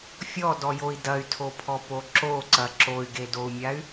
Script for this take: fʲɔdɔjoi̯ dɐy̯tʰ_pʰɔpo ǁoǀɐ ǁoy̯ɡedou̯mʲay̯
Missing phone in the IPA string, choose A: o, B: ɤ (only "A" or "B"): A